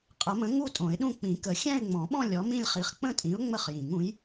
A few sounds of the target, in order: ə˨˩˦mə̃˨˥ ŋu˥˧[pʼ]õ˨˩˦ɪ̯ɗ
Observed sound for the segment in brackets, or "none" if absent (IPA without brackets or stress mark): tʼ